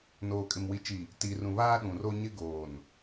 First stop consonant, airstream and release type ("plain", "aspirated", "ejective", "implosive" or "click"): ejective